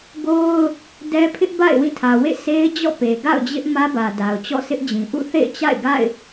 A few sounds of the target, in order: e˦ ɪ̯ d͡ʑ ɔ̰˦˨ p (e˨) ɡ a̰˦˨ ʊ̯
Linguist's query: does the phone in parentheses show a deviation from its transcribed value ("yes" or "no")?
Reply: no